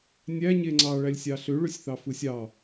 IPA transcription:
nʲ æ ɲ e ŋ͡ǀ ɑ ɭ æ lʲ sʲ ɑ ɬ ø ɭ ø sʲ θ ɑ f ɯ sʲ ɑ

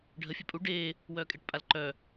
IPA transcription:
ɖʱ ə fʲ ɛ pʼ u ɖ eː | w œː kʼ e ʈ pʼ a l ǃ œː

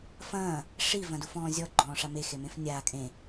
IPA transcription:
f ɐ̃ː | ʂ i v ɐ̃ d u f ɔ̃ː zʲ ɔ ɡ͡ǃ ɔ̃ː ʂ a m e x e m ẽ f nʲ aː kʼ ẽ

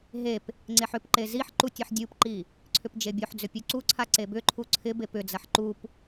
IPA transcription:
ɦ e p | ŋ͡ǀ e ħ ʏ p ǃ e z i ħ ǃ u tʲ ɐ ħ dʲ u p ǃ i | ǀʰ ʏ p d͡ʒ e bʲ o ħ d͡z ʏ pʲ u ǀ u ǀʰ a ǀ e b ʏ ǃʰ u ǀʰ ɪ b e p ʏ d͡z ɐ ħ ǃ u p

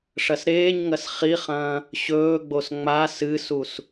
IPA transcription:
ʂ ɐ s ɾ eː ɲ ŋ ɐ s χ i χ ɐ̃ː | ɕ ɵː ɡ͡b o s ŋ͡m a s ɨ s u s

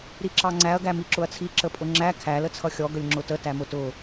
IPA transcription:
ɾ i ǁ ɑ ŋ͡ǀ æ ɐ̯ ɡ æ m i ǁ ʊ ɐ̯ t͡sʰ i ǁ ə pʼ ʊ ŋ͡ǁ æ kʰ æ l ə t͡sʰ ʌ xʲ ɔ ɡ ə lʲ ŋ͡ǁ ʊ t ə t æ m ʊ t ʊ

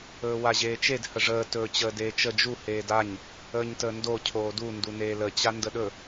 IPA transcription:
ɵː w a ʑ eː t͡ʃ e d h ə ʐ əː t ɵː t͡ɕ əː d eː t͡ʃ ə d͡ʒ u h eː d a ɲ | əː ɲ t əː n d o cʰ oː d u n d u n eː l ə t͡ɕ a n d ə ɗ ɵ

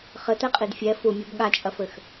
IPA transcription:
χ ɘ t̪ ɛ qʼ i d fʲ ɛ f u mʲ o b ɠ a t͡ʃʼ ɐ f ɘ x

